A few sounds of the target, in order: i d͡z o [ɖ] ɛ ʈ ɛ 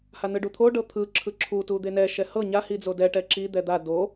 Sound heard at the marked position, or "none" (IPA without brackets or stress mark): d